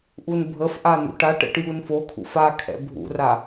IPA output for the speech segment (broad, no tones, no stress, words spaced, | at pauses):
ʔunbʱəfʔa n̪ṵʈaʈɛ̰ʈ junfokʰṵf akʰɛ̰ bʱṵra